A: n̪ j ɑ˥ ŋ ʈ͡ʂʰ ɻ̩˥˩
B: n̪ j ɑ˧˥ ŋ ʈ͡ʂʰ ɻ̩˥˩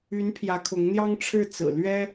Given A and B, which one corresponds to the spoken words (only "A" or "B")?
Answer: A